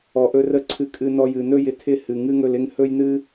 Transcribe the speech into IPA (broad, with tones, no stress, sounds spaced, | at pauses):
ɔ˧ ʔ ɵ˦ r ə˦ ǀʰ ɨ˧ kʼ ɨ˧ n ɔ˧ j ɨ˨ n ɵ˦ j ɪ˧ tʰ ɪ˦˨ h ɨ˨ ŋ ɨ˦ ŋ ɵ˧ l ɪ˦ ŋ h ɵ˦ j n ɨ˦